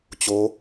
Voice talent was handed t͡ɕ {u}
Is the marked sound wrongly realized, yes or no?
yes